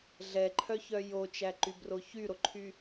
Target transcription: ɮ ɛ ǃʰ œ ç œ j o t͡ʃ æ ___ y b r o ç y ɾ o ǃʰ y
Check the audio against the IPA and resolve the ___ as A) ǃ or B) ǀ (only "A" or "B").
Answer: A